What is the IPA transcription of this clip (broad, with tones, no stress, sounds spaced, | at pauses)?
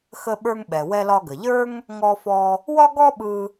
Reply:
x ə˧ ɓ ə˞˧ ŋ ɓ ɛ˩ w ɛ˧ l ɒ˧ ɡ ə˩ ʎ ə˞˥ ŋ | ŋ ɔ˧ f ɔ˧ | w ɒ˥ ɡ ɔ˥ ɓ ɯ˧